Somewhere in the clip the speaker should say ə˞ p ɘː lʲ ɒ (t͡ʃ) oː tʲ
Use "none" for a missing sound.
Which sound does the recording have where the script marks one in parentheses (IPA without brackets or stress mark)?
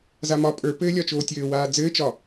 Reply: t͡ʃ